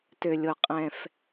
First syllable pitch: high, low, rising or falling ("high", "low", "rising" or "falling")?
low